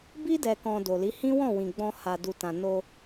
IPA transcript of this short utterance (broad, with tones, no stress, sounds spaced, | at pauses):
b i˦ d ɛ˧ k ɔ̃˧ d o˨ l i˨˦ h ĩ˦ w ɔ̃˦˨ w ĩ˨ ɡ͡b ɔ̃˧ h a˨ d u˨ t ã˨ n o˧